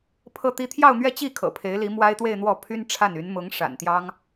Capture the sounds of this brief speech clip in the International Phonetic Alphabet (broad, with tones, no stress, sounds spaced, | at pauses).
pʰ ɤ˥˧ t̪ i˥˧ t̪ʰ j ɑ˥˧ ʊ̯ n̪ ɥ ɛ˥˧ t͡ɕ i˥˩ kʰ ɤ̰˨˩ pʰ e˧˥ ɪ̯ l i˧˥ m w a˥ ɪ̯ t̪ w e˥˧ ɪ̯ n̪ w ɔ˥˩ pʰ y˥ n ʈ͡ʂʰ a˥˩ n y˧˥ n m ʊ˧˥ ŋ ʂ a̰˨˩ n t̪ j ɑ˥ ŋ